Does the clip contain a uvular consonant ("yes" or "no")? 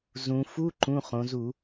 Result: yes